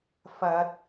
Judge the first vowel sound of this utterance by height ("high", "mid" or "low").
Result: low